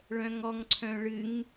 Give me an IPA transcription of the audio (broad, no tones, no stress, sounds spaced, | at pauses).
ɭ œ̃ ŋ ɔ ŋ ǀʰ œ̃ ɭ ɨ ŋ